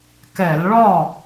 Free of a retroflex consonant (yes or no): no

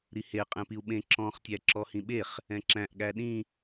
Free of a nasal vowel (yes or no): no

